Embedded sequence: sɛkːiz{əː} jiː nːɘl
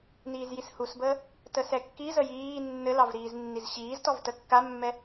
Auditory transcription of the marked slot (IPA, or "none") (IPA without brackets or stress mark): ə